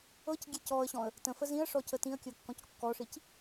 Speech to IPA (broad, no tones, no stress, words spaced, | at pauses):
ɤcɡʲe cɔə̯ɕɔ̃ə̯ | tə̃fə zĩə̯ʂɔcə tĩə̯kʲɤkːɔ̃c kːɔʂic